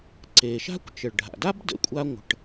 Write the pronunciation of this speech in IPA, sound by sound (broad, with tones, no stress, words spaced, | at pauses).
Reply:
ǀe˩ʃa̤˥kʷ t͡ʃə˩ɭɖʱa̰˩da˥b də̰˨kʷʼa˦ŋʷə̤˨ʈ